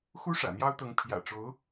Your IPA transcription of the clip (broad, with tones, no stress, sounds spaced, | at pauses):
x u˥ ʂ ä̰˨˩ n̪ j ɑ˥ ʊ̯ t̪ ɤ˧˥ ŋ pʰ j ä̰˨˩ ʈ͡ʂ o˧˥ ʊ̯